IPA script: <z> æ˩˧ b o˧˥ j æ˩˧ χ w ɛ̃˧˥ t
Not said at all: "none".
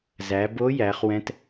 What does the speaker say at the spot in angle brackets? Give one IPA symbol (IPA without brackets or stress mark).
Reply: z